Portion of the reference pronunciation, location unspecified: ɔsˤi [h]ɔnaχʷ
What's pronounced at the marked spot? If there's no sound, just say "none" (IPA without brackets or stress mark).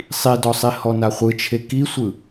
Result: h